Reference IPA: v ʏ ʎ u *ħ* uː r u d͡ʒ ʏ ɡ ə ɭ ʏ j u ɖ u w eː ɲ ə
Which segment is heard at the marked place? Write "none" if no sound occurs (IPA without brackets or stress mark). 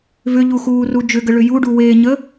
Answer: x